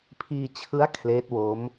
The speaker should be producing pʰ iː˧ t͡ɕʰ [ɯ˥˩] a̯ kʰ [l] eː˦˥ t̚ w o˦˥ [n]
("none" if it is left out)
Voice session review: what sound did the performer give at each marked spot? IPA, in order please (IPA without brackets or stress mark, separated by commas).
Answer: ɯ˦˥, l, m